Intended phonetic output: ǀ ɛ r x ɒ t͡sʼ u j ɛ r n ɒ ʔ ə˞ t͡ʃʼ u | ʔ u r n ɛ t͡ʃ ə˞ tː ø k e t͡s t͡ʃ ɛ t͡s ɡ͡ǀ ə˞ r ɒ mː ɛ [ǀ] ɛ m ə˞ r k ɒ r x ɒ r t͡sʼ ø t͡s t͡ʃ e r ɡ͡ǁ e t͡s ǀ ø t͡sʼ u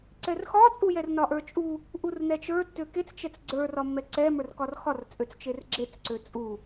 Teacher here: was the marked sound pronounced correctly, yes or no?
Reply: yes